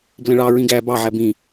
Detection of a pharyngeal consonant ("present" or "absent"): present